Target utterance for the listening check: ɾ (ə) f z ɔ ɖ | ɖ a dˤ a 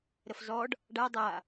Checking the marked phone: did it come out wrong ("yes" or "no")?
no